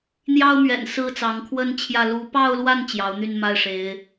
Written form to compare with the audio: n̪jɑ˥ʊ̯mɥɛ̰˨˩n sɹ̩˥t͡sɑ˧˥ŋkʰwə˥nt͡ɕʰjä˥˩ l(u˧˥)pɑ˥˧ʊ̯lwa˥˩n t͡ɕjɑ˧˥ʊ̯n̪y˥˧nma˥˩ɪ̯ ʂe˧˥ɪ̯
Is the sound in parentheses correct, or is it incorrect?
correct